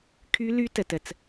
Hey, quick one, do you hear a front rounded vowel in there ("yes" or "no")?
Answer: yes